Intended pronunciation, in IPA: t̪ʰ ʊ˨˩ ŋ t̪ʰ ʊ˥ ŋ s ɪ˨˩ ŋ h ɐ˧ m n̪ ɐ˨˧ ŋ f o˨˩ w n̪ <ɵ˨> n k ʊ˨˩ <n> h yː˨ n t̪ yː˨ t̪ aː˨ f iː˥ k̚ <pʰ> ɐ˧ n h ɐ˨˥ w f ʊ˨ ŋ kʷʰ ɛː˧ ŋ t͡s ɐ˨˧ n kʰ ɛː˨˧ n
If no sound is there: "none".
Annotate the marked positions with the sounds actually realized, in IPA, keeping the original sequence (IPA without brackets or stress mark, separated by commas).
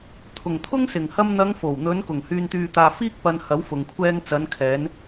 ɵ˨˧, ŋ, p